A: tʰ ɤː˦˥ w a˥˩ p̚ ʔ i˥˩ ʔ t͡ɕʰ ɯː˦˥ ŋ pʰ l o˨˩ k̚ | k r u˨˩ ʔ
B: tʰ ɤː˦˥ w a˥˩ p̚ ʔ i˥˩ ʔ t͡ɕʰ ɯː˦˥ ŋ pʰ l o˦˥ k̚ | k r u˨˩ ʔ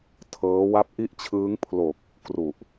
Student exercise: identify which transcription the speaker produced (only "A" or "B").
A